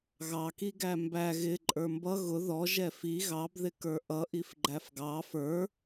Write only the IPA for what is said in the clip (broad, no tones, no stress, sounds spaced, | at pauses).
ɣ ɑ k i ɡ æ m b æ ɣ ɪ ǃʼ ə˞ m b ʌ ɣ ʊ ð ɔ ʒ ɛ f i ɣ ɑ b ð ɪ k ə˞ ʔ ʌ ʔ i f ɡ͡ǃ æ f ɡ ɑ f ə˞